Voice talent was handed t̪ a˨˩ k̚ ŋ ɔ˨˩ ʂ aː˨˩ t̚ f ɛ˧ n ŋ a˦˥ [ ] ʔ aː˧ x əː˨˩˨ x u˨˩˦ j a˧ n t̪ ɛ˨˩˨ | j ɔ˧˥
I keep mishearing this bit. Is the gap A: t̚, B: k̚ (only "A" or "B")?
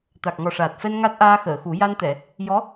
A